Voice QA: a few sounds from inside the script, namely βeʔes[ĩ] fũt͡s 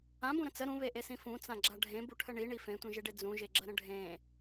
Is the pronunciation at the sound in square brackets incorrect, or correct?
correct